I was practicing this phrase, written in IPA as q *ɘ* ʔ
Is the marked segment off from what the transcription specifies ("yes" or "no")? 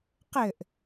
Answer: no